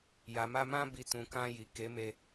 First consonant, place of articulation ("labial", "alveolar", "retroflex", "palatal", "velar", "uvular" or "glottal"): palatal